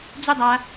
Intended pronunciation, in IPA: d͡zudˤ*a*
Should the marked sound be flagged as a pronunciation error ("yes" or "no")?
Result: no